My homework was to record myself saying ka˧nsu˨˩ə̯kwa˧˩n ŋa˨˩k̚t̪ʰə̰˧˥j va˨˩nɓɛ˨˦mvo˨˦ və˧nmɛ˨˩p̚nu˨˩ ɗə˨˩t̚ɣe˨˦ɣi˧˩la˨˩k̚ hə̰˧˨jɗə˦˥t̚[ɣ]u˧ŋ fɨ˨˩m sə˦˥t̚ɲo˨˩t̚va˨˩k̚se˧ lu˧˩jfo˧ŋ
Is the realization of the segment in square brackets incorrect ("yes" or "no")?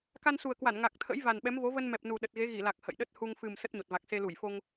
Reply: yes